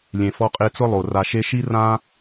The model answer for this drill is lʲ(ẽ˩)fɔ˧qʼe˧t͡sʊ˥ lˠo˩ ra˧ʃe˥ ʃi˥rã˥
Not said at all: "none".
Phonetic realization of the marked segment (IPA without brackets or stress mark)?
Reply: ẽ˩